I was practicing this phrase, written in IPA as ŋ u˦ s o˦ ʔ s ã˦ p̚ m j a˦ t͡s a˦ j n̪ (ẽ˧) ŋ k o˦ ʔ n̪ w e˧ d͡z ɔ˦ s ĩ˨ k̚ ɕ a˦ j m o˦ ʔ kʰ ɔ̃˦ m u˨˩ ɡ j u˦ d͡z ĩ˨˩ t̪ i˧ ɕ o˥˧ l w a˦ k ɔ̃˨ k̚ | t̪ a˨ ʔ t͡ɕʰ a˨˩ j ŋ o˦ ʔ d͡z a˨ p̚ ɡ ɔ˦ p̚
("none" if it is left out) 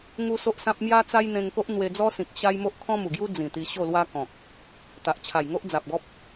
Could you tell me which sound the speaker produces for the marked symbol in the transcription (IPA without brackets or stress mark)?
ẽ˧